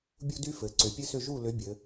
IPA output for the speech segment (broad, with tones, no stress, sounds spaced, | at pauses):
bʲ u˥ d y˥ f ɘ˩˧ ǀ ʏ˩˧ pʲ ɘ˥ s ʏ˥˨ ʒ u˥˨ l ʏ˨˥ bʲ ɘ˩˧